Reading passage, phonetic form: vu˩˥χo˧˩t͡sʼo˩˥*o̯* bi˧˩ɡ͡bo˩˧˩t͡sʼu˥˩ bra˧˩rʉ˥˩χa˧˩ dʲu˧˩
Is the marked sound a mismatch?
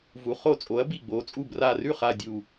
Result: yes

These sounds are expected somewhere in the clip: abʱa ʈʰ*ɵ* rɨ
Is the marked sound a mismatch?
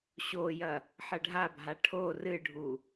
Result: yes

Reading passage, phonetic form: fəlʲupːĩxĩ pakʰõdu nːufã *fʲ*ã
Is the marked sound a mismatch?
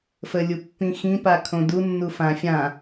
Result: no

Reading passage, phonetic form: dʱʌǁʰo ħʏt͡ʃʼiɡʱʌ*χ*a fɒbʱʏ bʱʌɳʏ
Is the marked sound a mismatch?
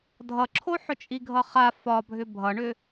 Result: no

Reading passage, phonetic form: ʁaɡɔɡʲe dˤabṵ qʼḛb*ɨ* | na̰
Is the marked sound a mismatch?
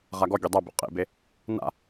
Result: yes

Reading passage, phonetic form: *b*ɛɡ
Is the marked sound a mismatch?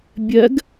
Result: yes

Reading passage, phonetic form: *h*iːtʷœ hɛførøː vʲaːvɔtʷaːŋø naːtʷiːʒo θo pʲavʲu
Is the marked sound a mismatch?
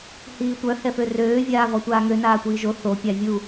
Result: no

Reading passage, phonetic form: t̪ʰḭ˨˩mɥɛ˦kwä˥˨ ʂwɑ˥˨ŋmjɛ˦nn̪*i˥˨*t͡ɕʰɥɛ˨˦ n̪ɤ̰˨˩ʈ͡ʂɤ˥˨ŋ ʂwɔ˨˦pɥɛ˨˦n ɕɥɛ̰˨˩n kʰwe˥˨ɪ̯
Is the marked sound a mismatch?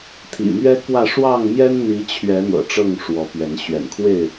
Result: yes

